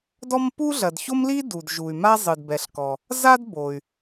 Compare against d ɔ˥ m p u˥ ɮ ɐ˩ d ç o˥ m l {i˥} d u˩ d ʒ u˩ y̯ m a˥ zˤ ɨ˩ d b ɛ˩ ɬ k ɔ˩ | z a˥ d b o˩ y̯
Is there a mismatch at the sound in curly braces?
no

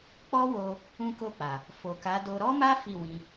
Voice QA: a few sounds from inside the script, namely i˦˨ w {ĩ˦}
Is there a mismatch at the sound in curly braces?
yes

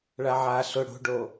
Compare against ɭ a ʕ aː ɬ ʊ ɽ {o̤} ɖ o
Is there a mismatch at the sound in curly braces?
no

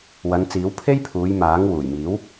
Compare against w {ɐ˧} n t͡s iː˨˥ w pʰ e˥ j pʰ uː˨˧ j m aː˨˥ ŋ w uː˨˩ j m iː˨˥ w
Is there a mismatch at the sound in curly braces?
yes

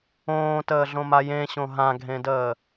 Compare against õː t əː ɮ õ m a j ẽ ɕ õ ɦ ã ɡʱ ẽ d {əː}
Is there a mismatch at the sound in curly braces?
no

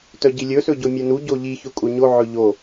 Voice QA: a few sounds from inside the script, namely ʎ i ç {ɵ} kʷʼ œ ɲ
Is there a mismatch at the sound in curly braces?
no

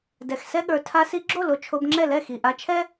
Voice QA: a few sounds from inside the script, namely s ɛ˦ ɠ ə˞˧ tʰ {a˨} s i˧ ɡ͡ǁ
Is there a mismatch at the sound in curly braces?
yes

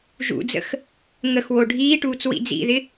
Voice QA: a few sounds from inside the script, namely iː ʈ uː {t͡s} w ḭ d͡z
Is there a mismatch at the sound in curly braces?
no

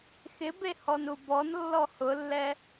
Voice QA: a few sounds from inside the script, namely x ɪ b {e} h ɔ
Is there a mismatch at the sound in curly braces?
no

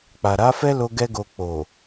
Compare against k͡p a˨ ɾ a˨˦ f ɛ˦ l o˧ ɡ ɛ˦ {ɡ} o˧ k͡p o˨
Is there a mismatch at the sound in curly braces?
no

